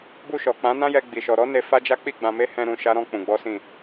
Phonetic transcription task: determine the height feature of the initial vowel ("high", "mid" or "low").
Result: high